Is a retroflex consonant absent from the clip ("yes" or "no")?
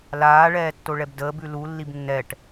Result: no